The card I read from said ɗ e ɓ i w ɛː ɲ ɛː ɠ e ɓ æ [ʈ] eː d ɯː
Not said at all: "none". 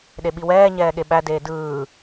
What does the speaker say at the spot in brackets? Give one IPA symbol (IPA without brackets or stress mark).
d